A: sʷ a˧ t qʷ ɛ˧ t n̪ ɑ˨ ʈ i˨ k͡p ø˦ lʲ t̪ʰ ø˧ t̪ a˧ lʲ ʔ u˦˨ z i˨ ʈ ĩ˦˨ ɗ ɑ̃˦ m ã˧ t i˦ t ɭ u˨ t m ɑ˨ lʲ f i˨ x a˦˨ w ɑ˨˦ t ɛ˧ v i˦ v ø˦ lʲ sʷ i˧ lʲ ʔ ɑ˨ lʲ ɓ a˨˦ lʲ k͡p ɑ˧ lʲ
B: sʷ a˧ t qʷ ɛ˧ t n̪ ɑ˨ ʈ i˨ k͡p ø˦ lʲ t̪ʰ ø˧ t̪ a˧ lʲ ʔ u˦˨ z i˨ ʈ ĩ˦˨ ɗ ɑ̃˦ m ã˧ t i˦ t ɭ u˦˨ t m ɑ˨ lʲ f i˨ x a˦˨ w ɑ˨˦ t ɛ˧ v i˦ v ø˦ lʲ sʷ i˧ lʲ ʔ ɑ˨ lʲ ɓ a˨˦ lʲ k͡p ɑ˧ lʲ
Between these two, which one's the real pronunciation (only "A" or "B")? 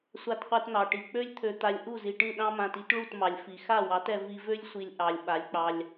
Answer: B